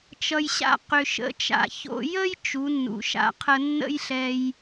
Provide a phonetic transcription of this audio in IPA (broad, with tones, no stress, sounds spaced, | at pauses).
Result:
t͡ʃ ʌ˧ j ɕ a̰˥ q ʏ˧ ʃ ə̰˧˥ t͡ʃ a̰˧ ç o̰˧ j ə˥ j t͡ʃ u˩˧ nː ṵ˩ ʃ a̰˧˥ qʰ ə˧ nː ə̰˥ j ɬ ɛ˧ j